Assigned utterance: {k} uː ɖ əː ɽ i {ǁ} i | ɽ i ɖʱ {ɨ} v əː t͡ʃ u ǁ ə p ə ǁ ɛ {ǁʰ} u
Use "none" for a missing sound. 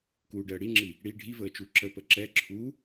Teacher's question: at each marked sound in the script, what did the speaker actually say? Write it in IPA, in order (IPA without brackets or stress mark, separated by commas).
k, ŋ͡ǁ, i, ǁʰ